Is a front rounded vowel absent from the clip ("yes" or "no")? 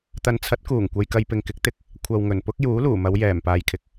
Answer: yes